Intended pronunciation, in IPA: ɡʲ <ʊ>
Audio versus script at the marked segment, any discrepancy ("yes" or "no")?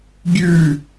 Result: yes